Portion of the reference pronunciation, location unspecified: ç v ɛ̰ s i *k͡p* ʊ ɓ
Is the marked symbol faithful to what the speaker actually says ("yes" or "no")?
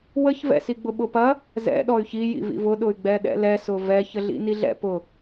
no